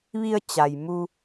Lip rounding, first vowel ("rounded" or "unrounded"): unrounded